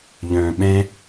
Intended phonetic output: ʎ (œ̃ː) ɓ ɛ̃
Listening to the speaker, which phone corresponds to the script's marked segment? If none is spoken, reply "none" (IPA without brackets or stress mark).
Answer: œ̃ː